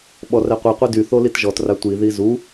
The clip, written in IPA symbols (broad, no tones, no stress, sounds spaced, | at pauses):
ɓ ɔ r ɛ qʷ i qʷ i d y θ o l i t ʒ ɔ t r a tʷ i ð i z u